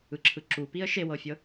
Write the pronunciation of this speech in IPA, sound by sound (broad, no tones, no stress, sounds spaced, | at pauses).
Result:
ɯ ǁʰ ɯ ǁ u p i ə̯ ʃ e w ɤ fʲ ɤ